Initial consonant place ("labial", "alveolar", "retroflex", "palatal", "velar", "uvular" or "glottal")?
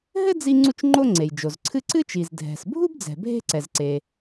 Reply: glottal